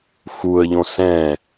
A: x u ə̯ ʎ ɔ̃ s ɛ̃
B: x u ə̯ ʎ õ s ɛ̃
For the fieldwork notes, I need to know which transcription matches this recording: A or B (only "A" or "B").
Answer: B